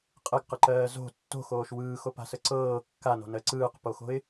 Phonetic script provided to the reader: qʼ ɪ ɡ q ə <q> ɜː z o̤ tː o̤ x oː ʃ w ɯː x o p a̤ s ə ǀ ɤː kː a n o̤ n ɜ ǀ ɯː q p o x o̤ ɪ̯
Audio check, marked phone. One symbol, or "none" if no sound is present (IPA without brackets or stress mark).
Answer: ǃ